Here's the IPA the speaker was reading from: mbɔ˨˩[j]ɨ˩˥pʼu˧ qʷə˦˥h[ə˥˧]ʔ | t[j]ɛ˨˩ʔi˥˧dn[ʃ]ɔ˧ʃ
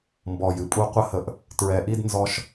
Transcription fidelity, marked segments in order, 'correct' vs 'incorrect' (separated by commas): correct, incorrect, incorrect, incorrect